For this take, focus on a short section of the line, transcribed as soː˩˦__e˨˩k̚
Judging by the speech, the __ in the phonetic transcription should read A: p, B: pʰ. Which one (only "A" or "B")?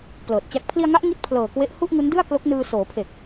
B